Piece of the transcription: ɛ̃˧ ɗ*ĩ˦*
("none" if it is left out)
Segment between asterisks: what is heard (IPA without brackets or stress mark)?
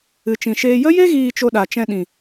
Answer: ĩ˨